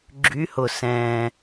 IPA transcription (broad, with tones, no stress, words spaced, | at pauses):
ɡ͡ǁy˧˥hʊ˨˩ sɛ̃ː˨˩